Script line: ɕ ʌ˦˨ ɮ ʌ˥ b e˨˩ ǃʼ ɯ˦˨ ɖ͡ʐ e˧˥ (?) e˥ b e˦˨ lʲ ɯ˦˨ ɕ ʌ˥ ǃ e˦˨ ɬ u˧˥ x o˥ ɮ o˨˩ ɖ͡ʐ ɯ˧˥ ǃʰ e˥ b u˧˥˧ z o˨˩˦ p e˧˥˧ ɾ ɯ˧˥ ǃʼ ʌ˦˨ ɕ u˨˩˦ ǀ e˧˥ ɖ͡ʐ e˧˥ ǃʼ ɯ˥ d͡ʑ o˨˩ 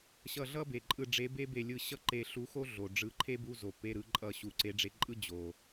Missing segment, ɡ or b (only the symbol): b